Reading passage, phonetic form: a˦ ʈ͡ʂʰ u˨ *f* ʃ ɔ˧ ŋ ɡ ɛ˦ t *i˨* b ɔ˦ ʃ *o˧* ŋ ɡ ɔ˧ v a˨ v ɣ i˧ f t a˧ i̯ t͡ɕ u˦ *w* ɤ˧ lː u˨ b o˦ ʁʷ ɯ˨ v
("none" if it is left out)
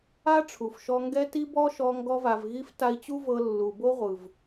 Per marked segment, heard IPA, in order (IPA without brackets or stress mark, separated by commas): f, i˦, ɔ˧, v